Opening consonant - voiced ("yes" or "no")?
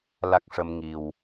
yes